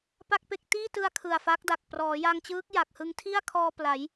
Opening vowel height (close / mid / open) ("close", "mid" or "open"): open